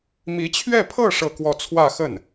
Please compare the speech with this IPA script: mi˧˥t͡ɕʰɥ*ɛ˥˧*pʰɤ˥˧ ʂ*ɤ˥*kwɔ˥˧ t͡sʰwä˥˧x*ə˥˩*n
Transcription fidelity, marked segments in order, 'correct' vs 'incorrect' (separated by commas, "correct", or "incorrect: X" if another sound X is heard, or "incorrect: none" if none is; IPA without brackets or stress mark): correct, incorrect: ɤ˥˧, correct